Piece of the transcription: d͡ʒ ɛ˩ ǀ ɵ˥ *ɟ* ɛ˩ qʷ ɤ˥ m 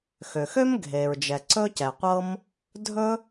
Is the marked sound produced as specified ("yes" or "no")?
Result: no